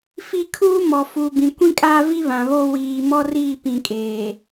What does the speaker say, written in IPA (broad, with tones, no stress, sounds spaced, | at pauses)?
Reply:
f i˦ kʰ uː˦ m ɔ˨ f u˨ b ĩ˨ kʷ ĩ˦ kʼ aː˦ v i˦ β ã˨ β oː˦ w iː˨ m ɔ˦ r iː˦˨ p ĩ˨ kʼ eː˨